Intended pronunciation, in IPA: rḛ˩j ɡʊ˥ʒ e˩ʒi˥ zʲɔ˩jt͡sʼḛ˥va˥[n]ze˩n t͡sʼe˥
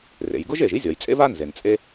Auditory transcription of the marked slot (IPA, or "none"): n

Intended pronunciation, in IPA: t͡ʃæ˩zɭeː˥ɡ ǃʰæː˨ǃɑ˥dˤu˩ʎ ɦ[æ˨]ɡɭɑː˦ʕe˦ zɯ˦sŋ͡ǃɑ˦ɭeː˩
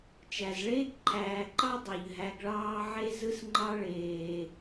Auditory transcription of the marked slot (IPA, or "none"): æ˨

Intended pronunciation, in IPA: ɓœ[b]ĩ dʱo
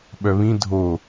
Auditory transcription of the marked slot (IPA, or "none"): β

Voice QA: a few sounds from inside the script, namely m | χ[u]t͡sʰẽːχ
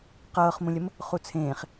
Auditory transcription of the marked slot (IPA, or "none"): u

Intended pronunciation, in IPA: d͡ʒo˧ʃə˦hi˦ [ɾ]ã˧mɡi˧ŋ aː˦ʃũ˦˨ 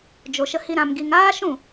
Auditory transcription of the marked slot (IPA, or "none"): ɾ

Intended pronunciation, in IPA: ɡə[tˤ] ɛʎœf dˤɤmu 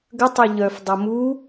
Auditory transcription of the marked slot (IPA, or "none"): tˤ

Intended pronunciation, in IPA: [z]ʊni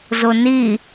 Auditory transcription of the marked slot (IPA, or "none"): z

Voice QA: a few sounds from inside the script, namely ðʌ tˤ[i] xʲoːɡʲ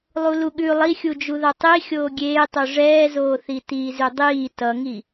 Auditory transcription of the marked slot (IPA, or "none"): i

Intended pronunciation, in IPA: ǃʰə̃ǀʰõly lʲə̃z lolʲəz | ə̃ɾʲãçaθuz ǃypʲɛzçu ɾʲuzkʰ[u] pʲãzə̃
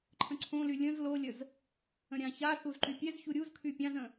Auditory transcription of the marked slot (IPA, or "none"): y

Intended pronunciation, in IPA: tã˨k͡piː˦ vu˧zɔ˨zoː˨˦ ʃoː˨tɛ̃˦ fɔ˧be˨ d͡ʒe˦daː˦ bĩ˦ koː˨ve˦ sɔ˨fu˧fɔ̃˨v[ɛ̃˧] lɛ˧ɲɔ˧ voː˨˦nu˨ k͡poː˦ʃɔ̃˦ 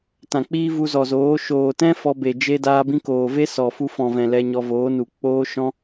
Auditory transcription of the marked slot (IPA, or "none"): ɛ̃˨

